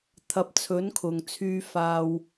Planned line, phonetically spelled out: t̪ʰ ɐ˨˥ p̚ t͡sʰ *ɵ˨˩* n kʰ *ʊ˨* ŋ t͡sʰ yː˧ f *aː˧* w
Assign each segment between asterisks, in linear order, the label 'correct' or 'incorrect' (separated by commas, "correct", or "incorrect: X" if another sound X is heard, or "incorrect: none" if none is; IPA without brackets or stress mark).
incorrect: ɵ˨˥, correct, correct